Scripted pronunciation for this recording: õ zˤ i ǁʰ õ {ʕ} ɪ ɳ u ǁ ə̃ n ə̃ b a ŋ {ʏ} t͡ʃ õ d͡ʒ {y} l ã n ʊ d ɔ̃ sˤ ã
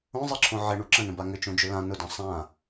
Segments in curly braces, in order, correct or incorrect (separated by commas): correct, correct, incorrect